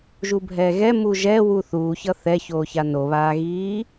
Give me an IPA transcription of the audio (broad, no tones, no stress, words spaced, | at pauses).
ʒubʱɛːɣɛ muʒɛ wuθuːçʌ θɛçoːça noβaːɣiː